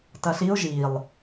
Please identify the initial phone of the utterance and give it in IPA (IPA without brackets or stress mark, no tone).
t